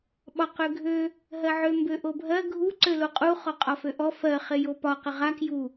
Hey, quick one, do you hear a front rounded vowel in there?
yes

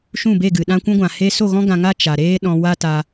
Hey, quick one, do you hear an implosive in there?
yes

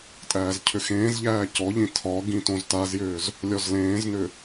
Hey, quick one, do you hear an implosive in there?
no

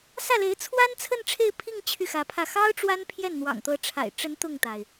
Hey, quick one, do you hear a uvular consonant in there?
no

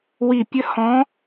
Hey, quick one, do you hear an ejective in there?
no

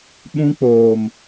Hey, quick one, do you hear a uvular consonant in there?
no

